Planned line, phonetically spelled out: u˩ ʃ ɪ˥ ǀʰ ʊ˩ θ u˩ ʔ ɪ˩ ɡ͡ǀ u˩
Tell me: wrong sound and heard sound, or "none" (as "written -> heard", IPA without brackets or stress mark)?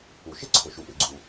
θ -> ʃ